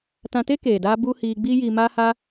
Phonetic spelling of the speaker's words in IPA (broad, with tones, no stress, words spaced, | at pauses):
tã˧te˦keː˨ daː˦bu˦ hiː˧ɡ͡biː˦jiː˧ maː˦haː˦